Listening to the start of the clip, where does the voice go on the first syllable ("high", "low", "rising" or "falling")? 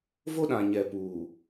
high